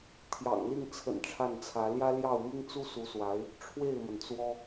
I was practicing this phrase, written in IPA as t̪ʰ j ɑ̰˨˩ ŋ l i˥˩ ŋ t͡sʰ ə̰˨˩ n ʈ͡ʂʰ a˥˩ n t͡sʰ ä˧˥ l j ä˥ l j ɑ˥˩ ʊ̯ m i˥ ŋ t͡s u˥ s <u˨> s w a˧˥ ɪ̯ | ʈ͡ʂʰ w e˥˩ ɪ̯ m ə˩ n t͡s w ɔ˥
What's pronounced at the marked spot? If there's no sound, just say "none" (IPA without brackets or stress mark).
u˧˥